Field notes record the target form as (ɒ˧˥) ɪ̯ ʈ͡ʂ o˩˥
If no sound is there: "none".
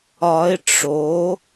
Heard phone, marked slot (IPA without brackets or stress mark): ɒ˧˥